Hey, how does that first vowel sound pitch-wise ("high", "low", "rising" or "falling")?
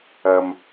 low